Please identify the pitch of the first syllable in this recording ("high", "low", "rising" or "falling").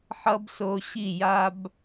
high